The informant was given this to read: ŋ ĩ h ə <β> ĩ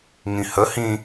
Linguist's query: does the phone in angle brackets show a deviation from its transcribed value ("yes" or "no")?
yes